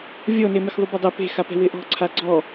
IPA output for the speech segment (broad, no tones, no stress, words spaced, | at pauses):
vʲɔnemɪx ðˤubadˤɛ pe̤xapɛ̤ wɪʔɔ̤ ǀʰaɡ͡ǀɔ